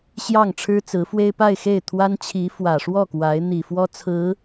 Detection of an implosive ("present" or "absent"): absent